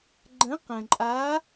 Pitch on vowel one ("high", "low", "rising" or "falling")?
rising